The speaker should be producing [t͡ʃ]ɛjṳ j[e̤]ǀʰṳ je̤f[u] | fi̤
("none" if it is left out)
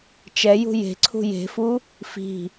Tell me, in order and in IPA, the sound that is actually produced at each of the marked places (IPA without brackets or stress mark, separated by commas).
t͡ʃ, e̤, u